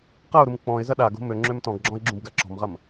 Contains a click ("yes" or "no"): yes